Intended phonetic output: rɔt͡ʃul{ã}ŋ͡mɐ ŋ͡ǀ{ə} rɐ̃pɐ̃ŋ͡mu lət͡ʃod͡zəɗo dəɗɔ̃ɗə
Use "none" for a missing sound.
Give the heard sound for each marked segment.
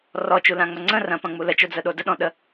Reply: ã, ə̃

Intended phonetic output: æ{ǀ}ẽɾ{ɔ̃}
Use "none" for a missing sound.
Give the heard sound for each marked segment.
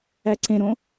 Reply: ǀ, õ

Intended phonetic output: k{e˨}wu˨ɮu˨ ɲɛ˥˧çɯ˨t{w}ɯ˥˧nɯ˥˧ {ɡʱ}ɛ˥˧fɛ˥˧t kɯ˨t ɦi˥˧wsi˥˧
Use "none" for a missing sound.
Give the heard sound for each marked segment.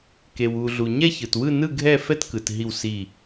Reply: e˨, w, ɡʱ

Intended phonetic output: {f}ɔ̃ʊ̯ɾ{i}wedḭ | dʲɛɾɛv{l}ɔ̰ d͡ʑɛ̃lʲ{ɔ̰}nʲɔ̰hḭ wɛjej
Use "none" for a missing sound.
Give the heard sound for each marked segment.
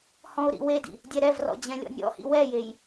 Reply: h, ḭ, r, ɔ̰

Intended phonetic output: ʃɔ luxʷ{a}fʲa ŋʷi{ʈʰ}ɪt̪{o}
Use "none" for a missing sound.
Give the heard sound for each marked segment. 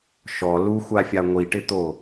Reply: a, ʈ, o

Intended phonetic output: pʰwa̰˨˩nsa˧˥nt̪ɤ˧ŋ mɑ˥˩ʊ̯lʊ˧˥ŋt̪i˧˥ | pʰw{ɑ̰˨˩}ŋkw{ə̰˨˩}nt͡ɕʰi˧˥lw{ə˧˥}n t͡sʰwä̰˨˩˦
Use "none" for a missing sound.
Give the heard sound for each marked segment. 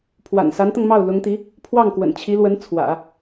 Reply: ɑ˥˩, ə̰˨˩, ə˧˥

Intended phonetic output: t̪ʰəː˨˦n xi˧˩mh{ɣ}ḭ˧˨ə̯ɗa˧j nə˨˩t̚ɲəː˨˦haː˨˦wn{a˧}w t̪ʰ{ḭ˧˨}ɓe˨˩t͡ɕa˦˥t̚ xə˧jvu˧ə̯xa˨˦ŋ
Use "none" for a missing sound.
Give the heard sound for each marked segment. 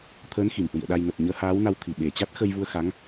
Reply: w, a˧, i˨˩

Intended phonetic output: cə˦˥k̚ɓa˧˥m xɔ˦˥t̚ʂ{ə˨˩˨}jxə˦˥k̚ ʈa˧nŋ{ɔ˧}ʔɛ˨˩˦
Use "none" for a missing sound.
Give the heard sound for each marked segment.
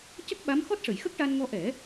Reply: ə˨˩˨, ɔ˧

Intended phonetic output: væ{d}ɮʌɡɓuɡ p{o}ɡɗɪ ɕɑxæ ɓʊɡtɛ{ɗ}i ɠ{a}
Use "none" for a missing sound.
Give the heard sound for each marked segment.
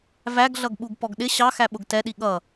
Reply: ɡ, ɔ, ɗ, ʌ

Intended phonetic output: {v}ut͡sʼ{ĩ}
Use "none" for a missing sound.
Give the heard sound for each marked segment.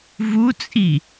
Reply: v, i

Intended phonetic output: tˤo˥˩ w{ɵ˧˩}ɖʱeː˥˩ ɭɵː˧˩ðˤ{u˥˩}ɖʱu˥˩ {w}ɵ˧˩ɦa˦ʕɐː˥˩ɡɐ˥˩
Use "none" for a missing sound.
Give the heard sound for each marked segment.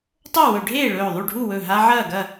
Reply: ɵ˧˩˧, u˥˩, w

